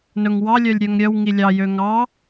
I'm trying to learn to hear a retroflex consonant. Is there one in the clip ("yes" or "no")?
no